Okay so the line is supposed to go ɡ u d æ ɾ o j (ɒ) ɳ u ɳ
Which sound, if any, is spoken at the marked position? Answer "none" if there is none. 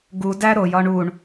ɒ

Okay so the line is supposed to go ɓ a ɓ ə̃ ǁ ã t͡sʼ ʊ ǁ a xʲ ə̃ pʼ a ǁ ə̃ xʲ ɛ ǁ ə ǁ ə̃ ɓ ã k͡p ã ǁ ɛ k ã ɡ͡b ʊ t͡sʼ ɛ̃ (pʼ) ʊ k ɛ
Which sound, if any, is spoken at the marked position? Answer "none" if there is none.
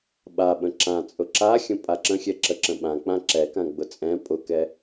pʼ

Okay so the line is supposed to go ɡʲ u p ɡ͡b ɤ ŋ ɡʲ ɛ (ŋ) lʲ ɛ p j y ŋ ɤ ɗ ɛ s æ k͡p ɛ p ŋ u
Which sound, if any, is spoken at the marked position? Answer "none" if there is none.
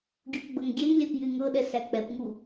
ŋ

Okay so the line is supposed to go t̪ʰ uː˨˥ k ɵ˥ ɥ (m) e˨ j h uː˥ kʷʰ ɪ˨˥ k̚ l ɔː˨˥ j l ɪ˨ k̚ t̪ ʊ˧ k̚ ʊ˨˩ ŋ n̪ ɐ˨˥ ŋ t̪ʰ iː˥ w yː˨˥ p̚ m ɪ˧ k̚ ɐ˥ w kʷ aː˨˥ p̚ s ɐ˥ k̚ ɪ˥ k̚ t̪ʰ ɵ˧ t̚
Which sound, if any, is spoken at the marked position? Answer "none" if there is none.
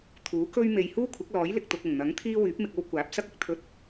m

